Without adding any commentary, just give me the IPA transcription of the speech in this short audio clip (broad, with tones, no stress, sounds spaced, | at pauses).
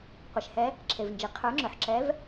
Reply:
qʷ e˩ ʃ h ɛ˨˦ | ǁʰ e˩ v n d͡ʒ i˩ qʰ ə˞˨˦ ŋ͡ǁ ʏ˩ ħ ǁ ɛ˨˦ v